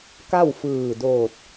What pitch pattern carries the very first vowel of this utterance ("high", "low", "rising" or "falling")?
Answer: falling